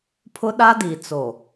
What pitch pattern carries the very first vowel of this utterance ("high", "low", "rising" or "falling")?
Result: high